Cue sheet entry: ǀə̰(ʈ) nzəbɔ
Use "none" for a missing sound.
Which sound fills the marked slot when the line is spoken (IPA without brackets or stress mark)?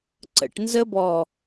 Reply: ʈ